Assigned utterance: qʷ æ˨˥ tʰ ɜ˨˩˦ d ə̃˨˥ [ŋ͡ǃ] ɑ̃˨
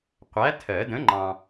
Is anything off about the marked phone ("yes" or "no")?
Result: no